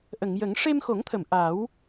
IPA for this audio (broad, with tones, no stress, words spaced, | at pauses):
ʔə˨˩˨ŋjə˨˩˦ŋ ʂe˧mxo˨˩˦ŋt̪ʰə˨˩˨m ʔa˨˩˦w